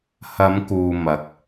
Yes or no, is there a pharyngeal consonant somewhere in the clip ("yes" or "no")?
no